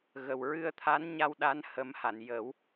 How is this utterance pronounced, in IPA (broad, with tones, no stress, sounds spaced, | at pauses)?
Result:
ɣ ə˨˩ w ɹ ɨ˧ ə̯ t̪ʰ a˧˥ n ɲ a˧ w ɗ a˧˥ n h ə˨˩˦ m h a˨˩˨ n j ə˨˩˦ w